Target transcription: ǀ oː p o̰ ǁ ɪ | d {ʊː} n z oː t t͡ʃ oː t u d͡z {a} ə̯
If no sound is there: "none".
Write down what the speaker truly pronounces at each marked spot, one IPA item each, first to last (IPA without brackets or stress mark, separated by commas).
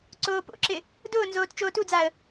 ʊː, a